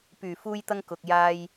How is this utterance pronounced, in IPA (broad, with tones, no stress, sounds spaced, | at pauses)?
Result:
p yː˨˩ f uː˧ j t̪ ɐ˧ ŋ k ʊ˨ k̚ j aː˧ j